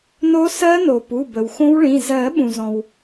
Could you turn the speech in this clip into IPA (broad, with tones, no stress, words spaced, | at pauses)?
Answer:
no˦˥sɜ˦˥no˩ pu˩˧˩bə˩wxõ˦˥wɭĩ˩˧˩ zɜ˨˩˦ ɓũ˩zɔ̃˩w